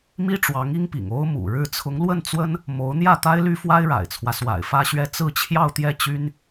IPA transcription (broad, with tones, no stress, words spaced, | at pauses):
mi˥ʈ͡ʂwɑ˧˥ŋi˥ŋpḭ˨˩ŋ o˥ʊ̯mṵ˨˩ɻɻ̩˥˩ t͡sʰʊ˧˥ŋlwə˥˩nt͡swə˥n | mo˧˥ʊ̯n̪jä˥˩t̪a˥ɪ̯ ly˥fwa˥ɪ̯ɻa̰˨˩ɪ̯t͡sʰwä˦ swa̰˨˩ɪ̯fä˥˧ɕɥɛ˥˧ t͡sɹ̩˥˧t͡ɕʰjɑ˥˧ʊ̯t̪jɛ˥˩t͡ɕy˥n